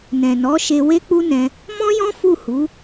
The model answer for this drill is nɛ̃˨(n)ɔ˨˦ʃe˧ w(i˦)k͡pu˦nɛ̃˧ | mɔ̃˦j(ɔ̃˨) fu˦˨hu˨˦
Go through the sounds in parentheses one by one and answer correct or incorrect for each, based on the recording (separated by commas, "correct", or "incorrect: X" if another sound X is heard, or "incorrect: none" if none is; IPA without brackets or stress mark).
correct, incorrect: e˦, incorrect: ɔ̃˦